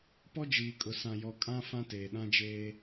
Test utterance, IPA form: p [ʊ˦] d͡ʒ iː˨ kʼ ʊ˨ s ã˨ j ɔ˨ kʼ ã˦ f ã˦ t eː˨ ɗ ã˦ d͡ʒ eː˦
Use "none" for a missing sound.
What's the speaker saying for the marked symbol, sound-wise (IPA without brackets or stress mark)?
ɔ˦